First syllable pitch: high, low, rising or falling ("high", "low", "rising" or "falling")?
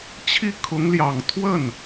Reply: falling